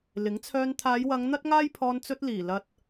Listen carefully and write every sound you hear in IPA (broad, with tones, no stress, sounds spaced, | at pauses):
l ɪ˨˥ ŋ t͡sʰ œː˧ n t̪ʰ aː˨˧ j w ɐ˨˧ ŋ n̪ ɐ˥ t̚ ŋ aː˥ j pʰ ɔː˧ n t͡s ɵ˧ t̚ l iː˨˩ l ɐ˨ t̚